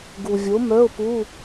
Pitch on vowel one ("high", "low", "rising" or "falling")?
low